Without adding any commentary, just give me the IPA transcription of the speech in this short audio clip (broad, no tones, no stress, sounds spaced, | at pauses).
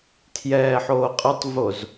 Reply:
tʰ j ɛː ħ oː qʼ ɘ tˤ v o z